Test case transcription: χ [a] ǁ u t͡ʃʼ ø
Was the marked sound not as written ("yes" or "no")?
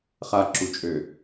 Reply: no